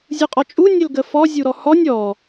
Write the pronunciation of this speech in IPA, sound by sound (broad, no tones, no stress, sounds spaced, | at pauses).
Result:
zʲ u qʼ ɔ t͡ʃʼ u nʲ ə l ɡ ə f ɔ zʲ u ɾ ɔ h ɔ nʲ ɔ